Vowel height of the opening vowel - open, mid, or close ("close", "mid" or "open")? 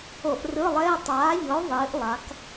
mid